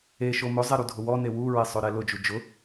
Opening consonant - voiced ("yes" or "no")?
no